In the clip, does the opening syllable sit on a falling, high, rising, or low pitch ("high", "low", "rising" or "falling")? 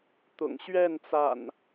low